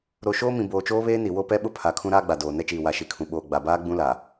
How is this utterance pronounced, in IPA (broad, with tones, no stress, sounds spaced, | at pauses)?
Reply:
ɾ o˨ ʃ oː˦ m ĩ˨ b oː˨ t͡ʃ oː˦ β eː˦ n i˨ w o˦ p ɛ˦ ɓ ʊ˦ pʰ a˨ kʰ ũ˦ ɾ aː˦ ɡ͡b a˨ d oː˨ n ɛ˦ t͡ʃ iː˨ w a˨ ʃ i˨ kʰ ũ˨ ɓ oː˨ ɡ͡b a˨ b aː˦ ɡ͡b ũ˦ l a˨